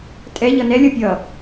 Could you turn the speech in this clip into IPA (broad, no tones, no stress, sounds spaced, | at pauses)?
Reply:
tʼ ɛ ʎ ʌ n ɛ lʲ ʌ pʲ ʌ